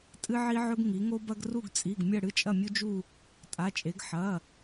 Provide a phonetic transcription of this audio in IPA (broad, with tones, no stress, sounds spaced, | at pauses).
tʼ ɨ˦ ʕ i˦ ʕ ɵ˦ ɡ ŋ i˩˧ ŋ o˦ b ɐ˦ ɡ r u˦˨ ɡ t͡sʼ i˩˧˩ ɡ mʲ ɐ˦˨ ɽ ɨ˦˨ t͡ʃʼ ɐ˦˨ mʲ u˦ d͡ʒ u˦˨ | tʼ a˩˧˩ t͡ʃʼ e˩˧ ɡ ħ ɐ˩˧˩